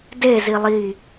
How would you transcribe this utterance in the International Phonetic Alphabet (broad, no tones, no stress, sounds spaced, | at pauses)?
d e z i lˠ i